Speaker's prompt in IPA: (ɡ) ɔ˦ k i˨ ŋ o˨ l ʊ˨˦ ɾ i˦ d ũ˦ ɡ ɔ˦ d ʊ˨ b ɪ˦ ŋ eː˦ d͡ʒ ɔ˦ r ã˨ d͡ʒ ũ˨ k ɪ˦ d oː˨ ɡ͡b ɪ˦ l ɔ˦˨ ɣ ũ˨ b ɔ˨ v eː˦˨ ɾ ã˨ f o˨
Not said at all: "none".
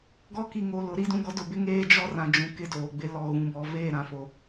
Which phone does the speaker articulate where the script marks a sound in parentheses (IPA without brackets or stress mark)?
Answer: ɡ